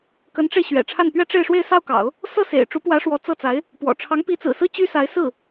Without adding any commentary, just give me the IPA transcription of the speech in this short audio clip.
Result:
k ə˧˥ n ʈ͡ʂ e˧ ɪ̯ ɕ ɥ ɛ̰˨˩ ʈ͡ʂʰ a˥˩ n p ɥ ɛ˥ ʈ͡ʂ e˥˧ ɪ̯ ʂ w e˥˧ ɪ̯ s ɑ˥˩ ʊ̯ k ɑ̰˨˩˦ ʊ̯ | s ɤ˥˩ s ḛ˨˩ ɪ̯ ʈ͡ʂ u˧˥ p w ä˧˥ ʂ w ɔ˧˥ t͡s ɤ˥˩ t͡s a˧˥ ɪ̯ | p w ɔ̰˨˩ ʈ͡ʂʰ ɑ˧˥ ŋ p i˧˥ t͡s ɹ̩˨˩ s ɹ̩˥ t͡ɕ y˥ s a˧˥ ɪ̯ s ɹ̩˥˩

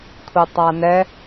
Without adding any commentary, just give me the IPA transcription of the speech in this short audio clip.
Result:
kʷʰ i tˤ a n ɛ

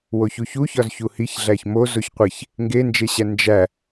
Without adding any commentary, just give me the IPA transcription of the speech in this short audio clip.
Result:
w o ç u ç u ç ɒ z ç u h i ç ɮ æ ç m o z o ç qʷ e ç | ŋ ɡ e n d͡ʒ e ɕ æ n d͡ʒ æ

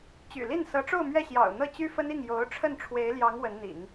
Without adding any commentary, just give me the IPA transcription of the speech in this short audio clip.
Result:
t͡ɕ y̰˨˩ l i˥˩ n s ɤ˧˥ ʈ͡ʂ o˥˧ ʊ̯ m ɥ ɛ˥˩ ɕ j ɑ̰˨˩ ʊ̯ n̪ ɤ˥˩ t͡ɕ y˥ f ə˥ n i˥˩ ŋ j o˧˥ ʊ̯ ʈ͡ʂʰ ə˥˩ n ʈ͡ʂʰ w e˧˥ ɪ̯ l j ɑ˧˥ ŋ w ə˧˥ n n̪ ḭ˨˩˦ ŋ

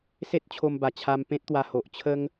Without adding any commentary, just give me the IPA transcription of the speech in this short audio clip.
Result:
s e˦ t̚ t͡ɕʰ o˧ m b a˨˩ t͡ɕʰ a˧ m p ẽ˦ t̚ t̪ w a˧ h o˨ ʔ t͡ɕʰ ə˦ ŋ

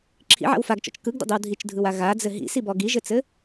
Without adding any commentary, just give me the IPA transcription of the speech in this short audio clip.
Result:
ǁʰ ḭ ʕ a̰ w f a ɡ t͡ʃ ɔ̰ t͡ʃ k ɯ ɡ d ə̰ dˤ i w dʱ i t͡ʃ dʱ ɯ w a ɣ a d͡z ɘ ɦ ḭ s i b ɔ ɡ i ʒ ɘ t͡s ɘ

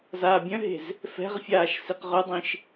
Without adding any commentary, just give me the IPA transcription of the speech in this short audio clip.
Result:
z aː bʲ œ̃ ɦ e̤ z | f ɛ̤ ʁ fʲ aː ʃ s i q ʁ œ dˤ ĩ ʃ

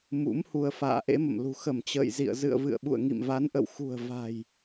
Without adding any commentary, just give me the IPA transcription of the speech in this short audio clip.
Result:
m ṵ˧˥ m h u˧ ə̯ f a̰ː˧˨ ʔ ḛ˧˥ m ə̰˧˨ m l ṳ˨˩ x ə˧˩ m t͡ɕ ə̰ː˧˨ j z ḭ˧˨ ə̯ z ɨ̰˧˨ ə̯ v ɨ̰˧˨ ə̯ ɓ ṵ˧˨ ə̯ ŋ ḭ˧˨ m v a˨˦ n ʔ ə̰˧˨ w x ṳ˨˩ ə̯ v a̤˨˩ j

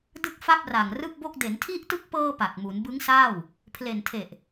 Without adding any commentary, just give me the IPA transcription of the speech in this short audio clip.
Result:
d ɯ˥˩ k̚ f a˥˩ p̚ r a˨˩ ŋ r ɯ˥˩ k̚ b o˥˩ k̚ d e˩˦ n tʰ i˥˩ ʔ t ɯ˥˩ k̚ p ɤː˧ p a˨˩ k̚ m u˩˦ n b ɯ˦˥ ŋ s aː˥˩ w | pʰ l e˨˩ n tʰ e˨˩ ʔ

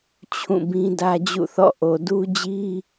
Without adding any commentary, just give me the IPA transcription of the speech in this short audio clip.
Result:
t͡ɕʰ ũ˦˨ b ĩ˦ d ä˦ d͡ʑ ṵ˦˨ θ ɔ̰˦˨ ʔ o˨ d u˦ d͡ʑ i˦

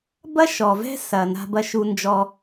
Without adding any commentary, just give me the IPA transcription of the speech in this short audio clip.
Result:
b ɐ˦ ʃ ɔ˨ v ɛ̤˦ s ɐ˨ n a̤˦ b ɐ˦ ʃ u˦ n d͡ʒ ɔ˦

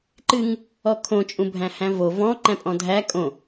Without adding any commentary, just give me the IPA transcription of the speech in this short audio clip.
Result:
ǃ ɨ ŋ | ɔ kʰ õ t͡ʃʼ ũ bʱ æ̃ h æ̃ v o v ɔ̃ ǃ æ̃ pʼ ɔ̃ dʱ æ kʼ õ

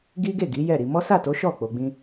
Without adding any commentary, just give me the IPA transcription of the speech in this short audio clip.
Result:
ɡ i˦ ɡ e˦˨ ɡ i˨˦ j ɛ˦˨ ɾ i˧ m ɔ˦ s a˦˨ t o˨˦ ʃ ɔ˦˨ k͡p o˧ ɡ͡b ĩ˦

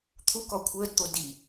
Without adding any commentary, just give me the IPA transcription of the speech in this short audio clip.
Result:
t̪ʰ u k ɔ kʷʰ əː d t̪ o d i

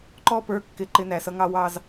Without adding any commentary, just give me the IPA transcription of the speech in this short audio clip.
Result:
ǃ ɔ˥˧ p ə˞˧ kː ɪ˥˧ ǃ ɪ˥ n æ˩˧ s ʌ˥ ŋ ɑ˥˧ w ɑ˥˧ z

